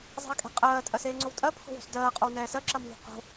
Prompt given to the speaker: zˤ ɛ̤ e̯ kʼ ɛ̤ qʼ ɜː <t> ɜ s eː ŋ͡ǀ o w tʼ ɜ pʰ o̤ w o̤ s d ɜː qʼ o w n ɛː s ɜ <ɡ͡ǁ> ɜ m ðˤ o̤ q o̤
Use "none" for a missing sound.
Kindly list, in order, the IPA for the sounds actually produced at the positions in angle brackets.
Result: tʼ, ǁ

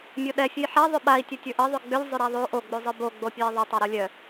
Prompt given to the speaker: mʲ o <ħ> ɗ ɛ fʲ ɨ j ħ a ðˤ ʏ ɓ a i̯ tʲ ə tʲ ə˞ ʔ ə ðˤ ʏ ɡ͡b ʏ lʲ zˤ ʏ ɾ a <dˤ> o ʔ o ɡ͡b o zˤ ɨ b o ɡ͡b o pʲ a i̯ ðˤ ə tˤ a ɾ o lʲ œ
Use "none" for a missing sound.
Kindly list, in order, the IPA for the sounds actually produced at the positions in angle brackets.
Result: none, ðˤ

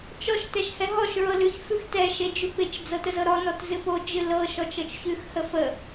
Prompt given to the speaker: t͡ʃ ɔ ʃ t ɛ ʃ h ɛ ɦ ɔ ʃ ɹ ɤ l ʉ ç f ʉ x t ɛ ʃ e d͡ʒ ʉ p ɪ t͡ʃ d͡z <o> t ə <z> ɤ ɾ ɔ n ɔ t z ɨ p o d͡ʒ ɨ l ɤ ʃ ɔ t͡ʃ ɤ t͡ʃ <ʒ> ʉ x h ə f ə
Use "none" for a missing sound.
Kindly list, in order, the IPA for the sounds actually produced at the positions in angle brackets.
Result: ɤ, z, ç

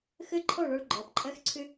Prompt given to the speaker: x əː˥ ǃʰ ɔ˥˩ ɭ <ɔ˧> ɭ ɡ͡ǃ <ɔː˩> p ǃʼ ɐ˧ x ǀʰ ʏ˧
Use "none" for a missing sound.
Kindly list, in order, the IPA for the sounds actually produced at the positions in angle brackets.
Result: ɔ˧, ɔː˩

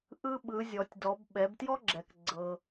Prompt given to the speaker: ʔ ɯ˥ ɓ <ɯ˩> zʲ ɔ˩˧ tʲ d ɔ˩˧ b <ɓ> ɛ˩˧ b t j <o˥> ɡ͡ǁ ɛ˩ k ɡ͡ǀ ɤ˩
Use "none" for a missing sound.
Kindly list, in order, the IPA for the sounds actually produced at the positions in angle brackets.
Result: ɯ˩˧, ɓ, ɔ˥

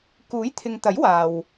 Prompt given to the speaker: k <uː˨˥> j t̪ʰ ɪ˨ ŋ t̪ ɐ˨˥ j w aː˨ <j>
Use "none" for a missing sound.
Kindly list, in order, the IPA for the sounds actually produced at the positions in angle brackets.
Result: uː˨˥, w

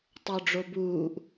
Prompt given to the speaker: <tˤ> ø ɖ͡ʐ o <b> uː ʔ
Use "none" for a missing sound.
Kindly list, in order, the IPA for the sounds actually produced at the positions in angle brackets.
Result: tˤ, b

